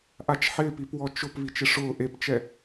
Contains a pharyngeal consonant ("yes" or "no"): yes